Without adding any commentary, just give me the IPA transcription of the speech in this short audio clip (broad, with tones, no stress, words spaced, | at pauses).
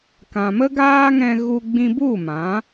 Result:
kã˨mə˦ɡaː˦ŋɛ̃˧ ɣu˧ɡ͡bĩ˧bu˦˨mã˨˦